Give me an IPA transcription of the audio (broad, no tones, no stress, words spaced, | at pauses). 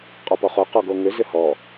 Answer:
qʼɔpɔχo qɔɡoŋʏ zʏhɔ